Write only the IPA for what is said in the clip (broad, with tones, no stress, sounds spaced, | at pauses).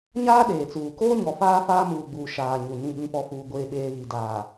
ɲ aː˦ ɗ eː˨ t͡s uː˨ k oː˦ ɲ ɔ˨ f aː˦ f aː˦ m uː˨ ɡ͡b uː˨ ʃ aː˨ ɲ u˨ n ĩ˦˨ ɓ ĩ˦ p ɔ˦ f uː˦ ɡʷ eː˦ ɓ eː˦ β i˨ d aː˨